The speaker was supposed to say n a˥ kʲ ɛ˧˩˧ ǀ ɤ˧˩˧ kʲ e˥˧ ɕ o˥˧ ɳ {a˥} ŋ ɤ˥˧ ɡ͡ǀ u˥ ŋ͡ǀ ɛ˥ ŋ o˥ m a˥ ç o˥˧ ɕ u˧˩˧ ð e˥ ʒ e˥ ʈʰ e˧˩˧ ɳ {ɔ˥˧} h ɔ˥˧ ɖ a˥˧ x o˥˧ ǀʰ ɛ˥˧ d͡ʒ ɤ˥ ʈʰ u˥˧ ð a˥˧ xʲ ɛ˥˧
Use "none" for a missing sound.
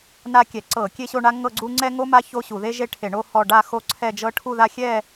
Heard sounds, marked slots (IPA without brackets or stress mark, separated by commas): a˥, o˥˧